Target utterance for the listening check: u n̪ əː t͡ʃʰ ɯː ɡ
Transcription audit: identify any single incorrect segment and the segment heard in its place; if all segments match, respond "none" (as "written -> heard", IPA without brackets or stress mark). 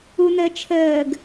ɯː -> əː